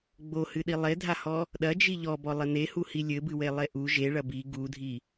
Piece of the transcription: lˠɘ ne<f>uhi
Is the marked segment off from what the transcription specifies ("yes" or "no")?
yes